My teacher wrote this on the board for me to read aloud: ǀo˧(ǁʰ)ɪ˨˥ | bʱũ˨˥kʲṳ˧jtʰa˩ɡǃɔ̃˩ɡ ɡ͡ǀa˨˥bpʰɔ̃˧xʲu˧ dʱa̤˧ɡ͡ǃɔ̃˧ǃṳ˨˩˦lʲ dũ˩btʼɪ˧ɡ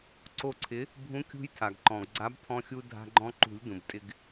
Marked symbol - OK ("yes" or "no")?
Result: no